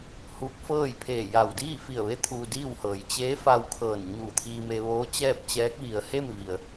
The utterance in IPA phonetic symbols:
huː˧˥k̚fɤː˥˨j pʰeː˧˩ja˧˩w diː˥˨fi˧˩ə̯ʋe˧˥ t̪ʰuː˧diː˥˨whɤː˩j t͡ɕeː˧˥fa˧w kʰɤː˧˩nɲuː˧˩t̪ʰiː˧me˧ ʋoː˧˥t͡ɕɛː˥˨p̚t͡ɕɛː˧˥k̚ ʋi˩ə̯he˥˨mʋi˩ə̯

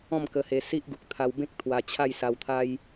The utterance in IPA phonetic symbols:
ɔ̃˥˧mkə˧he˧ si˦ʔɡu˨k̚t̪ʰa˧w bẽ˦k̚t̪ʰwa˧ t͡ɕʰa˥˧jsa˧wt̪ʰa˦j

